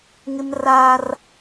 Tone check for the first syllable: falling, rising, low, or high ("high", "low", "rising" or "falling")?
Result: high